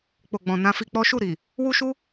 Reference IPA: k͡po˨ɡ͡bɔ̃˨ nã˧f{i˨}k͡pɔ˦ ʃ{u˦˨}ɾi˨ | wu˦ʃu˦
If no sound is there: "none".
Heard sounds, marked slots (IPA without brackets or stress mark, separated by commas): i˧, u˦˨